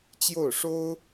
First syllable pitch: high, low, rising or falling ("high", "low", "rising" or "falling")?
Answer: falling